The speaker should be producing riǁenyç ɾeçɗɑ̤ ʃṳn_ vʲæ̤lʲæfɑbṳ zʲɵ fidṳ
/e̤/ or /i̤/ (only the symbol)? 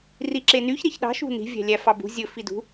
i̤